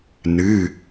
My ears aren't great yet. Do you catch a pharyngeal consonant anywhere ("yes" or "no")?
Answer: no